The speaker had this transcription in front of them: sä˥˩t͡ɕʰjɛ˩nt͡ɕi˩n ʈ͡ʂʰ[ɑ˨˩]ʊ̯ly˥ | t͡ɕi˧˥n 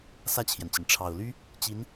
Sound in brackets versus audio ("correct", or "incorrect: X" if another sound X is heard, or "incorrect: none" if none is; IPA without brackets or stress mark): correct